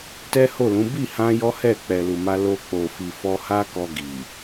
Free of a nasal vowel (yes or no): no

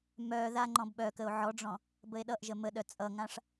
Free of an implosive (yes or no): no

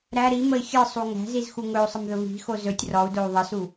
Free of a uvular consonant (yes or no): yes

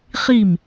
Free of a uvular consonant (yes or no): no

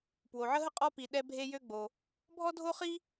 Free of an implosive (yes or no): no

